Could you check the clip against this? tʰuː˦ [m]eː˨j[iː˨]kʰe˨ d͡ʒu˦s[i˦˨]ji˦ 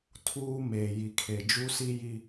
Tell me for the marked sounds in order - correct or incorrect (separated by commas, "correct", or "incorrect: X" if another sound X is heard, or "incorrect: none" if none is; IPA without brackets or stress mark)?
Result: correct, incorrect: i˨, incorrect: i˦